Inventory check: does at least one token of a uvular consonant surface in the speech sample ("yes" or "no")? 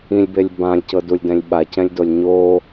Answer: no